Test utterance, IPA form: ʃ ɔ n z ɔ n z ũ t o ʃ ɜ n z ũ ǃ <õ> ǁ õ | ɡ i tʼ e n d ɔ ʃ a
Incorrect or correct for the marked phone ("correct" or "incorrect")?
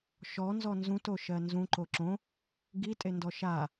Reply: incorrect